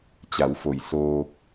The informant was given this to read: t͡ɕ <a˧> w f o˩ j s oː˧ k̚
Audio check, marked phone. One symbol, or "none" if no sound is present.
a˩˧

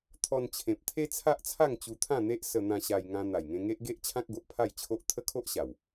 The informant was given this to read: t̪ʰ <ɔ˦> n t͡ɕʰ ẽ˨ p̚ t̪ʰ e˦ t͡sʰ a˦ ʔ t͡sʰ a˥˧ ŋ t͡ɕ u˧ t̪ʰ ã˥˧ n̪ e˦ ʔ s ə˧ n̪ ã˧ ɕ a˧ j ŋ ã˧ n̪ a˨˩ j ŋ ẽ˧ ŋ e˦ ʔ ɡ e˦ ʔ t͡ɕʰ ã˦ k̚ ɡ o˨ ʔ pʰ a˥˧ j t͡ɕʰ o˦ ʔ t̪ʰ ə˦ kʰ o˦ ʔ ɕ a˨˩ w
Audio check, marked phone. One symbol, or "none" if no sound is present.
ɔ˧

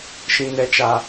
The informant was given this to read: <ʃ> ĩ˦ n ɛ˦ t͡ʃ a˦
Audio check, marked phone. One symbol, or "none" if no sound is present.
ʃ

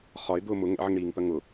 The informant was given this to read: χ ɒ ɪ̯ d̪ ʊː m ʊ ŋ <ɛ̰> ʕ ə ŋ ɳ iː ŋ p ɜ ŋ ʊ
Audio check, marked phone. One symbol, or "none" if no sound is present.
ɛ̰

